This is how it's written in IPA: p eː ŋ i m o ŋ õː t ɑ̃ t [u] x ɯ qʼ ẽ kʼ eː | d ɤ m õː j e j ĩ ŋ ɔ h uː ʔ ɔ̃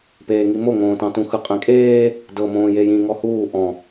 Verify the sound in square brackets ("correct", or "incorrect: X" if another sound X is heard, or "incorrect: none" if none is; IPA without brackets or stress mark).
incorrect: ũ